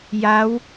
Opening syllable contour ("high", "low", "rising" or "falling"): rising